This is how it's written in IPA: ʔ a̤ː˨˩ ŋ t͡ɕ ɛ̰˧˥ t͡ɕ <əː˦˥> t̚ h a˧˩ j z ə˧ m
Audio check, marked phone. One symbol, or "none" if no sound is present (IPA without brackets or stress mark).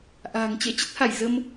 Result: ə˦˥